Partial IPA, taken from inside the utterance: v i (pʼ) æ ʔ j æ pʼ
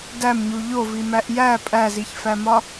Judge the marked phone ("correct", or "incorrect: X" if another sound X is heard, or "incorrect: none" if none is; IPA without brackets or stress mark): incorrect: m